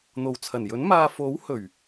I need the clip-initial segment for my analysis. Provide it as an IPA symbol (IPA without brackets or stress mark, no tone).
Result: n̪